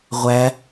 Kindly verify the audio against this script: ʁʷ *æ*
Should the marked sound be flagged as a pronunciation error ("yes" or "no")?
no